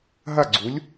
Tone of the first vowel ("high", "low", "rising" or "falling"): falling